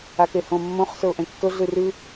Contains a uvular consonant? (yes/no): yes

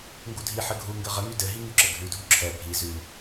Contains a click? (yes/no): yes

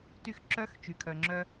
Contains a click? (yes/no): yes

